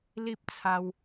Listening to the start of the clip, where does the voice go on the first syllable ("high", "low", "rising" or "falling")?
high